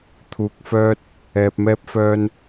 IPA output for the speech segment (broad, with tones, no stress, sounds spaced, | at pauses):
t̪ʰ uː˨ k̚ f œː˧ t̚ | ɛː˨ p̚ m ɛː˧ p̚ f œː˧ n